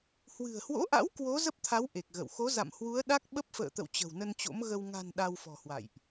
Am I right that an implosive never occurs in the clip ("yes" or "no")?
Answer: no